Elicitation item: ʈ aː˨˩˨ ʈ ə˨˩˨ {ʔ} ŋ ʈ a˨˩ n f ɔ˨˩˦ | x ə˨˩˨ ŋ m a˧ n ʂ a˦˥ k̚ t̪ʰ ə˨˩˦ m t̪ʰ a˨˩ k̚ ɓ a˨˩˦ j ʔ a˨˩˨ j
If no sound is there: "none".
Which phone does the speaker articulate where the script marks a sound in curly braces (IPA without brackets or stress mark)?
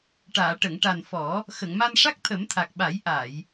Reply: none